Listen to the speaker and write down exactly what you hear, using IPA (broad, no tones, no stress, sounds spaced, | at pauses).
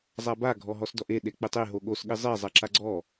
zˤ a b a ɡʱ ɔ ɦ ɔ s d ɔ ʔ e ɗ e k͡p e tˤ e ɦ o ɠ o s ɠ ɪ zˤ e zˤ a ǁ a ɡ͡ǀ ɔ